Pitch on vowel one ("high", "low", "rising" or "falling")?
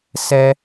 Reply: high